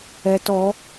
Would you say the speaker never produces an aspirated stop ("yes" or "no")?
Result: yes